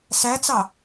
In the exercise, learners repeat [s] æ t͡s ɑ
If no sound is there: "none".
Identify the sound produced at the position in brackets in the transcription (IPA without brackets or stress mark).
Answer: s